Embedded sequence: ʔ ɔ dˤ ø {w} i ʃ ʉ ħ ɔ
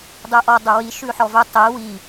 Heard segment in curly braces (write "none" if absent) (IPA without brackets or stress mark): w